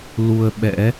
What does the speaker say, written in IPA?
lu˧ə̯ɓɛ̰˧˥

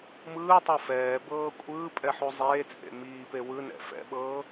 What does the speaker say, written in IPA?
mɯːtˤɤ fɛːbɤː kʷʼɯːpʼɛħu zˤeːt͡sʼḛ miːpe wɯnɛ̰ fɛ̰ɓɤː

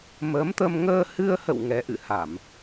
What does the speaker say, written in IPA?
mə˨˦mt̪ə˧m ŋəː˧hɨ˧ə̯hə̰˧˨w ŋɛ˨˦ʔɨ̰˧˨ha˧˩˨m

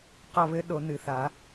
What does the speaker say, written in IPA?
qɒ˦˨βɘ˧˥ ɗo˨˩˦nɨ˨˩˦θa˨˩˦

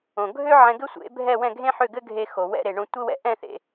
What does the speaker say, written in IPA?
õ˩ɡʱø˥ ʕɛ̃˧ɡɘ˥sʷḛ˩˥bʱɛ˥˩ wɛ̃˥˩ɡʱẽ˥ħø˥˩ɡɘ˥ ɡʱe˧xo˩ wɛ̰˧ɾe˩ɳõ˧tʷɘ˥ wɛ̰˧ʔɛ̃˥˩θḛ˩

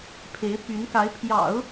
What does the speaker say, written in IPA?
pʰe˧˥ɪ̯py˧˥nka˧˥ɪ̯ pʰjɑ̰˨˩˦ʊ̯

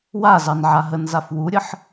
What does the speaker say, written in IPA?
wazɑn ʕaɦənzaf wuɾʲəħ

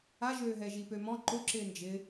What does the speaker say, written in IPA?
aʒøːɦɛ ʒipømɔ̃ ǃʊǁɪː nd͡ʒɪ

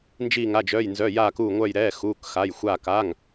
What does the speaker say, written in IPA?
nd͡ʒiː˥˧ŋa˧˥˧d͡ʒœː˧˥˧jnzœ˧˥˧ jaː˥˧kuː˥˧ŋʷœ˥˧jɾɛː˧˥˧ xuː˧˥˧kxa˧˥˧jxʷaː˥˧k a˧˥˧ŋ

